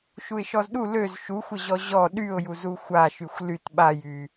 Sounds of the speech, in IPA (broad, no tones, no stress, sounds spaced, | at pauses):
ʃ u ɪ̯ ʃ ɔ z ɗ u l ø z ʃ u xʷ ə ʑ ɔ ʑ ɔ ɗ y ʊ̯ j u z u xʷ a ʃ y xʷ l y t ɓ a j y